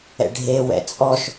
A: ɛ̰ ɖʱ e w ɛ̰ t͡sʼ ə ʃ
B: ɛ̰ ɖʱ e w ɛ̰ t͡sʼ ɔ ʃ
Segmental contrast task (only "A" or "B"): B